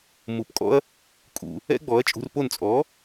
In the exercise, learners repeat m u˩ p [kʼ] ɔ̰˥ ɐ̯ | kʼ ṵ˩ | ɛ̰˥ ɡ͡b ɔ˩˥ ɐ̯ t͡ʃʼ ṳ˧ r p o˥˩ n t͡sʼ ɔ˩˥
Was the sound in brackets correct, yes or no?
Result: yes